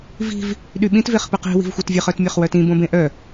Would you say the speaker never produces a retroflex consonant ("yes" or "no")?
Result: yes